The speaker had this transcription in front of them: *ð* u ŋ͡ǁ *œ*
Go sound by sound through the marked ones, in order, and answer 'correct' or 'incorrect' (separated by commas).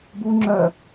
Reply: incorrect, correct